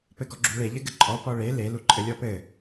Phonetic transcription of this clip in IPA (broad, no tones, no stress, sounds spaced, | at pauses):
p ɘ ɡ ɔ ɡ͡ǁ u ɭ e ʎ ɘ ɡ ɘ ǃʼ ɔ p ɔ ɭ e l e l u ǃʼ ɘ lʲ ɔ p ɘ